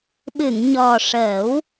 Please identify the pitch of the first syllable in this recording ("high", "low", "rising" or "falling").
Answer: low